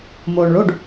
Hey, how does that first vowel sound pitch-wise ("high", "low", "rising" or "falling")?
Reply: low